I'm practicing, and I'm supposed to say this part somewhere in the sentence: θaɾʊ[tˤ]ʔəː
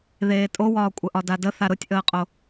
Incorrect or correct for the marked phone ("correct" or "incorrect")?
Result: incorrect